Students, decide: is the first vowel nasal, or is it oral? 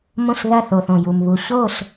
nasal